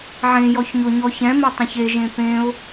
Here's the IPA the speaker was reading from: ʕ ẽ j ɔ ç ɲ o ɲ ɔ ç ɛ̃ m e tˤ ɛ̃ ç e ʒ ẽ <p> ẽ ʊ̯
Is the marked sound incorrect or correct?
correct